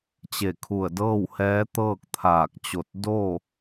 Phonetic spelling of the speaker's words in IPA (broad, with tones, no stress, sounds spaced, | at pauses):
t͡ɕ e˧˩ kʰ u˧˩ ə̯ d ɤː˥˨ w h ɛː˧˥ t̪ ɤː˥˨ k̚ t̪ʰ aː˧˩ k̚ t͡ɕ o˧˩ t̚ d o˥˨